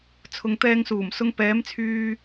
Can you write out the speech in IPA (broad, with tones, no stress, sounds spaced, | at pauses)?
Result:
t͡sʰ ʊ˨ ŋ t̪ ɛː˧ ŋ s uː˨˩ m s ʊ˧ ŋ p ɛː˨˧ m t͡sʰ yː˧